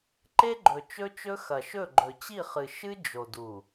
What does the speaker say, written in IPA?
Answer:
ǃe˦ɡ͡ǃɵ˨ t͡ʃɵ˦t͡ʃɵ˦ xɐ˨ʃɵ˦˨ ɡ͡ǃɵ˨t͡ɕi˦˨χɨ˨ ʃɨ˦ d͡ʒo˨du˨

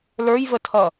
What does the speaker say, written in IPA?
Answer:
lə˞jvətʰʌ

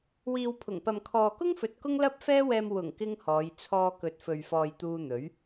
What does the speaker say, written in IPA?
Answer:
wiː˨wpʰʊ˨˩ŋpɐ˨m kʰɔː˨kʊ˥ŋfɵ˨t̚ kʊ˥ŋlɐ˥p̚fɛː˥wɛː˧m wʊ˨˩ŋ kɪ˥ŋhɔː˨˧j t͡sʰɔː˧kɵ˨t̚fɵ˨ɥfɔː˨j t̪uː˧n̪ɵ˨˥ɥ

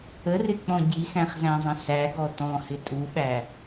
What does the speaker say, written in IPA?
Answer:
ərɪk͡pɔ̃ ɟixæ̃χzæ̃zˤə̃ sæɡɔ tɔ̃hɪ tʼuɓæ

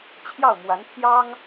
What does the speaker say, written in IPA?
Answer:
t͡ɕʰjɑ˥˩ʊ̯mwa˧˥npʰjɑ˥ŋ

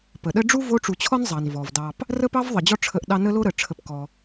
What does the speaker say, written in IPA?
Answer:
pə˩ɗə˦ɖ͡ʐu˥ vo˦ʈ͡ʂu˨t͡ɕʰɔ˥nzˤɑ˩n vɔ˩vdɑ˨p | rə˦pɑ˦vðˤə˩ d͡ʑɔ˥ ʈ͡ʂʰə˦ʔɗɑ˥ nə˥lo˥ɾə˩ʈ͡ʂʰə˨p kɔ˩

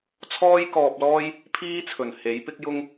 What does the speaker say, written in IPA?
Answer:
t͡sʰɔː˥jkɔː˧p̚lɔː˥j | pʰiː˥t͡sʰɵ˨˩n he˨˥jpɪ˥k̚jʊ˥ŋ

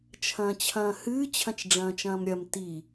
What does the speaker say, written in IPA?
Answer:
t͡ʃʰɐ̃ːt͡ɕʰɐ̃ːhɨː t͡ɕʰɐ̃t͡ʃɖ͡ʐɐ̃ːt͡ʃɐ̃ːmɾʲɐm ti

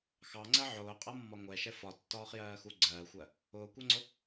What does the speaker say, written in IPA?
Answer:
xɑŋ͡ǀɜ ʕʊːqʼʌmːɒ ŋʷɛʃɛ fɒtːɒːχjɜːxu ɡ͡ǀɜːxʷɜ | ʊːkʷɜŋ͡ǀʊ

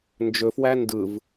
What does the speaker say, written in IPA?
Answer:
nd͡ʒɵfwæ ndɯv

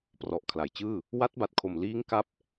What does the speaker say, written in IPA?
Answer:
prɔ˨˩ʔkʰla˩˦jt͡ɕɯː˥˩ | wa˦˥t̚ba˨˩t̚kʰo˨˩m liː˦˥ŋ ka˥˩p̚

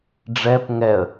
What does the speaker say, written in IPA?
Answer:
ɖ͡ʐɛp ŋɛə̯

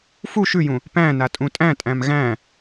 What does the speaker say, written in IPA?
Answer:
fu ʃʉjũ | pæ̃na tʼũtʼæ̃tʼæ̃m ɣæ̃

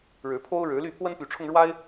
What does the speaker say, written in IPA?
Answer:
ɻɻ̩˨˦pʰo˦ʊ̯ɻɻ̩˨˦ly˥˨ pʰwə˦npy˨˦ʈ͡ʂʰʊ˧ŋ ɻwa˦ɪ̯

